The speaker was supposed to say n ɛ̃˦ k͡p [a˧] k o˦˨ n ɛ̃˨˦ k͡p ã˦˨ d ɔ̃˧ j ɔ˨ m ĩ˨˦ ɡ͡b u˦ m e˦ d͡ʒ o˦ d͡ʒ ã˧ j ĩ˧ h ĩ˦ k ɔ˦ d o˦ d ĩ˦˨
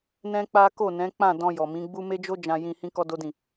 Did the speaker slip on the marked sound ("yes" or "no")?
yes